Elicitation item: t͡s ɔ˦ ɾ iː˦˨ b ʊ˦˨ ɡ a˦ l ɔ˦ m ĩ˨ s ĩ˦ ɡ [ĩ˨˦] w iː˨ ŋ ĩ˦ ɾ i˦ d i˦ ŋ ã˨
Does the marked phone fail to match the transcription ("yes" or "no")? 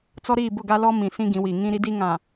no